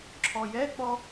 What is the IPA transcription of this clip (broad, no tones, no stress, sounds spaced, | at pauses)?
ǁʰ ɔ j ɛ k͡p ɔ